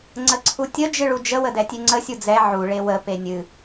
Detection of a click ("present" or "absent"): present